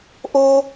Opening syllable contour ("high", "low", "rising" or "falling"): high